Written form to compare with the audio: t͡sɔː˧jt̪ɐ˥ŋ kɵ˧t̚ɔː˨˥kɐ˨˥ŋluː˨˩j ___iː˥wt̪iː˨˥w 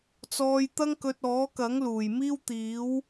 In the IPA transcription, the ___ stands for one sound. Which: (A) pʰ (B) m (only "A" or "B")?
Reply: B